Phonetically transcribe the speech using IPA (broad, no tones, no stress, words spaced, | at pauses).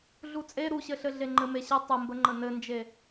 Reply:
ɮut͡sʼe ɾuɕɘɬɘ ɮeŋ͡ǃɘmeɕɘ tˤɘmbəŋ͡ǃə nɘnd͡ʒe